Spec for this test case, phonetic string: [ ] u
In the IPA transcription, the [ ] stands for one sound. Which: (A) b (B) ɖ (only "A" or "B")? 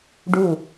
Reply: B